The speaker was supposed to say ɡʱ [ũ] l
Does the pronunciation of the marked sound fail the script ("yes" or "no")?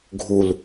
yes